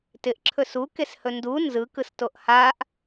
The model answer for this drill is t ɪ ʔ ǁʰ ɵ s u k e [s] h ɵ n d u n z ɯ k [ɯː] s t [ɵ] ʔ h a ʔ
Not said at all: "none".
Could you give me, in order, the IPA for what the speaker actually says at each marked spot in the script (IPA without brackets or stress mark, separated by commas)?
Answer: s, ɯ, o